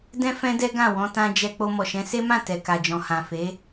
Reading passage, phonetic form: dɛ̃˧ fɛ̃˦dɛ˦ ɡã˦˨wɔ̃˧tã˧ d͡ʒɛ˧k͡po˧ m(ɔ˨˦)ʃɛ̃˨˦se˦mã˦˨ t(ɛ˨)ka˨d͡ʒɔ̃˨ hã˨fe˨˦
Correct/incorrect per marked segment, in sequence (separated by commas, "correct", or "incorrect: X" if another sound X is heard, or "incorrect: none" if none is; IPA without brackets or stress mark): incorrect: ɔ˨, correct